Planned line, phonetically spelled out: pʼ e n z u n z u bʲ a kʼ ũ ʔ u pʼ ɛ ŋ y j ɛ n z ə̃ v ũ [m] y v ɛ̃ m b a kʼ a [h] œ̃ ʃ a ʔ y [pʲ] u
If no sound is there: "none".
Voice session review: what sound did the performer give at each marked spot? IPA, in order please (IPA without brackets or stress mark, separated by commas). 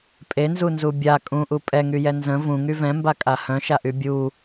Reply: ŋ, h, bʲ